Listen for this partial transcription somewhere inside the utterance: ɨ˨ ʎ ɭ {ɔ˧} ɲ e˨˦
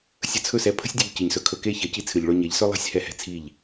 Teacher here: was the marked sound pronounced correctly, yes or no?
no